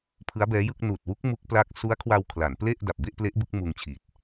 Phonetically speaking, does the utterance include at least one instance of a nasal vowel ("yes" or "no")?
no